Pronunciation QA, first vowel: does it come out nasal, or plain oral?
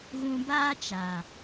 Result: nasal